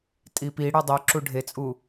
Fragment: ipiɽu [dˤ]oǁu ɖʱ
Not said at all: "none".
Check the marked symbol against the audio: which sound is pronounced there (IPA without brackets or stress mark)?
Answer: dˤ